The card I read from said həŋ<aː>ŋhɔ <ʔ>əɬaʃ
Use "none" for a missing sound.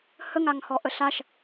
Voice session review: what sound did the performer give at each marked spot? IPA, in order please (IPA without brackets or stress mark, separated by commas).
a, ʔ